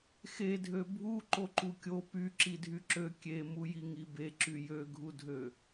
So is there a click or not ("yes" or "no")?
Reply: yes